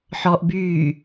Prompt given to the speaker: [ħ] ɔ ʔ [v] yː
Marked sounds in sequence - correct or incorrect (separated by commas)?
correct, incorrect